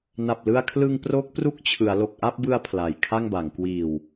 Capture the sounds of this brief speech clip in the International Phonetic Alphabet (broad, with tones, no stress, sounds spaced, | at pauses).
n a˨˩ p̚ l ɯ˧ a̯ kʰ l ɯ˧ ŋ p r o˦˥ k̚ p r u˥˩ k̚ t͡ɕʰ ɯ˩˦ a̯ l o˨˩ k̚ ʔ a˥˩ p̚ b ɯ˧ a̯ pʰ l a˨˩ j kʰ a˥˩ ŋ b a˩˦ ŋ k w iː˨˩ w